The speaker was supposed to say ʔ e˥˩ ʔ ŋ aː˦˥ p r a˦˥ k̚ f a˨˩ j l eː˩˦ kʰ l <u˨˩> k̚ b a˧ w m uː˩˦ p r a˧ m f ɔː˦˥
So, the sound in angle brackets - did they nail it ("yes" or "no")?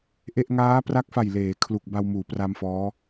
yes